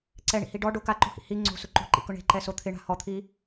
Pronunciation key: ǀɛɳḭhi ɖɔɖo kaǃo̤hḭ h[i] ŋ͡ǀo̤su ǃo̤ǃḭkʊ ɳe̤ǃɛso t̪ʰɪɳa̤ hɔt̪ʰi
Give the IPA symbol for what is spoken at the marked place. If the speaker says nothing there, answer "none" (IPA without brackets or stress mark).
i